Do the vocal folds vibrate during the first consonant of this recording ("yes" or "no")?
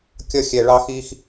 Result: no